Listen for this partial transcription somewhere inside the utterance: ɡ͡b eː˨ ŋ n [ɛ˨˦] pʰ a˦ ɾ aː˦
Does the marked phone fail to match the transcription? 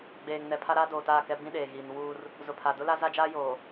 yes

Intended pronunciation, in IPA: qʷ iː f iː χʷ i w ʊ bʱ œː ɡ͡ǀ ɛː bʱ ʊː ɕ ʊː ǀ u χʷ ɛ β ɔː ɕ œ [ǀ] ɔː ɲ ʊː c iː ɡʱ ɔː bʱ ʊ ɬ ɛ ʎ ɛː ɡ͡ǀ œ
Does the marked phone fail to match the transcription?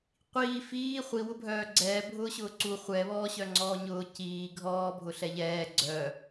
yes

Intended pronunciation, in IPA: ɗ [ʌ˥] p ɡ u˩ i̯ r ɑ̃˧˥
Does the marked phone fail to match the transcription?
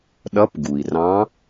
yes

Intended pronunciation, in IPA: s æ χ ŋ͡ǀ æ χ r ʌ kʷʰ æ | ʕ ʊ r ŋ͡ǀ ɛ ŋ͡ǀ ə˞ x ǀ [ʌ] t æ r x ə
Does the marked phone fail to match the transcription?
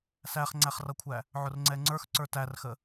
yes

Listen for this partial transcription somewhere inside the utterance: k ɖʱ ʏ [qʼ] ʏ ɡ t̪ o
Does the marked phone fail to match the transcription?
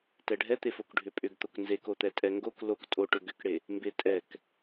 yes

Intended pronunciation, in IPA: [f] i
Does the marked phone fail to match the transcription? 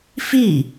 no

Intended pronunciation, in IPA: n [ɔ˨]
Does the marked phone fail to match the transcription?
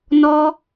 yes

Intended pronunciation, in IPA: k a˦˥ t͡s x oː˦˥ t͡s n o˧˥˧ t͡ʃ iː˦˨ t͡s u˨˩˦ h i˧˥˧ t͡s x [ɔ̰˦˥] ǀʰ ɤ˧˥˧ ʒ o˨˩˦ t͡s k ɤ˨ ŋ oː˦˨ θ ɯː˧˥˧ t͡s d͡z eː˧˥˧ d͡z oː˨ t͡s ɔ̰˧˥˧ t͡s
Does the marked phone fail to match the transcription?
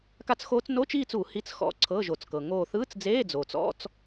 no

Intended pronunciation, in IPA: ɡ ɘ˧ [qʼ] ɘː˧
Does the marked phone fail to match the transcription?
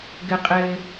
no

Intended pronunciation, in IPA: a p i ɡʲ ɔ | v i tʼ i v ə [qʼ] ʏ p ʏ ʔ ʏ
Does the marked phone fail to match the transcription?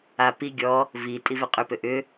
no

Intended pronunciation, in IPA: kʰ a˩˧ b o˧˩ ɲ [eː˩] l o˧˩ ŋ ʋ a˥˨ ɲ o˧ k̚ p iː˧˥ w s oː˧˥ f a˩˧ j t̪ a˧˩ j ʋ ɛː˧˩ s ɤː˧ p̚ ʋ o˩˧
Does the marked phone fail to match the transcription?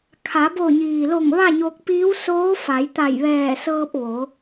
yes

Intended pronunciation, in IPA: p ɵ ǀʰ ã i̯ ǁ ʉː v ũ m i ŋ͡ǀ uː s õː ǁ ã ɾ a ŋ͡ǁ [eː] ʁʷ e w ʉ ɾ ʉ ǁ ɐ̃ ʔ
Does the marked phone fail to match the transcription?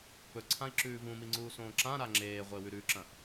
no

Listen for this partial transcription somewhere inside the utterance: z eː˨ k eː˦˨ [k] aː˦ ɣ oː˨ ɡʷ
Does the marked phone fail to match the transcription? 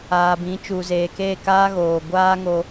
no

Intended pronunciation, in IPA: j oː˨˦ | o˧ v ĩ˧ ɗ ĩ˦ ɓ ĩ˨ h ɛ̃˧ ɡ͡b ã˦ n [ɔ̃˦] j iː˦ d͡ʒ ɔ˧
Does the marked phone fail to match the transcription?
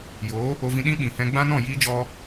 yes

